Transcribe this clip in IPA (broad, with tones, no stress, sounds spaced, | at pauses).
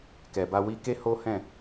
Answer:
k ɛ˨ b a˧ w i˧ k e˦ h o˦ h ɛ̃˦˨